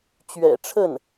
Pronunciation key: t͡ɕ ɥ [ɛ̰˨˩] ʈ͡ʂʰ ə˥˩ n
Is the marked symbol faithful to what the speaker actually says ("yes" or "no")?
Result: yes